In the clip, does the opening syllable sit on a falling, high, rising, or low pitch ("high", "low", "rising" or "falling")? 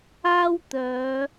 high